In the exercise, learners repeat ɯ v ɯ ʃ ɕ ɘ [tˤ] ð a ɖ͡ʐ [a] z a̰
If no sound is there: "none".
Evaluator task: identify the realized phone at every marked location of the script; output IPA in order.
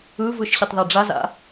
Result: tˤ, a

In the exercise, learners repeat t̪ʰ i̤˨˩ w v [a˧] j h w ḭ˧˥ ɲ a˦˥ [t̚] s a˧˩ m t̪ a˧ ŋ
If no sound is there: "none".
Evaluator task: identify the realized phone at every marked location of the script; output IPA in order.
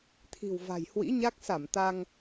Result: a̤˨˩, k̚

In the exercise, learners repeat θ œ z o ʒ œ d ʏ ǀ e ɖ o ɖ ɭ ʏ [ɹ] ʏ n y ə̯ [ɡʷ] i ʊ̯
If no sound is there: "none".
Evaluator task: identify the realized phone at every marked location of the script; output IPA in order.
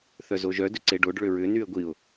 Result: ɹ, ɡʷ

